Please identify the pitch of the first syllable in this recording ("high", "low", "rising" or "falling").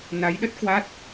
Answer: rising